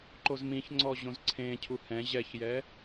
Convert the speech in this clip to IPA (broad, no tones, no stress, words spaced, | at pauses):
ǃozmĩçŋ͡ǀɔ ʑõzǀʰẽcʰu hɛ̃ ʑɛçjɛ